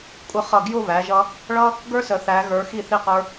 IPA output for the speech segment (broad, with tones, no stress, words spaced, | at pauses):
kʷʼə˧ χʌ˧˩ɡjʊ˥˧ βæ˩˧ʒʌ˧ | ɭʌ˥ | ɡə˞˥sə˩˧ θæ˩˧ɣə˞˩˧ xi˧˩θi˧˩qə˞˧